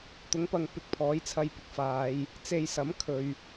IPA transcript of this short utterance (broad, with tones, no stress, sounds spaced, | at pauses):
t̪ ʊ˨˥ ŋ p ɐ˨ ŋ p ɪ˧ k̚ pʰ ɔː˨˥ j t͡sʰ ɐ˧ j p ɪ˨ k̚ f aː˨˧ j | t͡s e˧ j s ɐ˨˥ m kʰ ɵ˨ ɥ